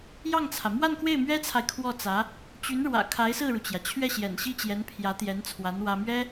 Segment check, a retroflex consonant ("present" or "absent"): present